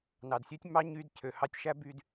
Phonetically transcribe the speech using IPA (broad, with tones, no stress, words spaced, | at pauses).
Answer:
nɑ˨dsʲø˦tʲ mɑ˧ ɲy˧d cʰø˨hɑ˧tʲʃæ˦by˧d